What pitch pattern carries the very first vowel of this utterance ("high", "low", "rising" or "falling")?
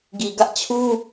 low